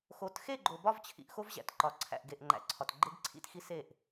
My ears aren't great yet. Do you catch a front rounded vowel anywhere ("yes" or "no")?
no